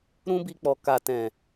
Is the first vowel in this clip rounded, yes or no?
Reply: yes